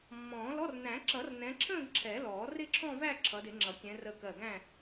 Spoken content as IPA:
mːɔ̃ː˨˩˦lɔ˧˥˧r næ̃˨˩˦ǁʌ˨˩˦r nɛ̃˨˦ǁʰə̃ː˥˧ɡ ǁʰɛ˨˩˦lɔː˨˩˦ rɪ˥˧ǁʰɔ̃˥˧væ˥˧ ǁʰʌ˨˦dɪ˨˩˦ŋ͡ǁʌ˨˩˦kʲɛ̃˨˦ rə˧˩kɜ˧˩ɡæ̃˥˧

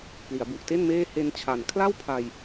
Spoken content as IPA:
pli˩˦a̯bu˨˩ʔte˥˩nmeː˥˩ he˧nt͡ɕʰa˨˩n kʰla˥˩wpʰa˧j

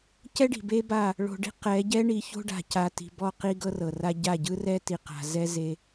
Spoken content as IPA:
cɛ˦ɖi̤˨be˦ba˦˨ | ɭo̤˨ɖi̤˦ qɛ˨˦ɟɛ˦ɳi˨˦ ço̤˦ɖa̤˨ca˨ ti̤˨bɔ˦˨qi˦ ɡɤ˦rɤ˨ra˦ ɟa˦˨ɟɯ˦rɛ˦ ti˨qa̤˨zɛ˦ ze˦

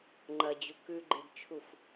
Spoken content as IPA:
ŋ͡ǃɐ d͡ʑukʉɡ͡ǃedt͡ʃʰuf

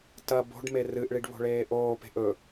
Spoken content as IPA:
tɐ bo̤ɖme rɨʔɭiɖ βo̤ɭeːʔoːpe̤ʔ ɵ

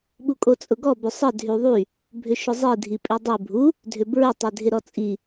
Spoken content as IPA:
ɓukʼot͡sʼʊɡɔ bʏsˤə dʱyðˤy | bʱʏʃʊzˤi dʱipʼidˤe bʱu | dʱʏbɹʊ tˤedʱɪɾɔt͡sʼi

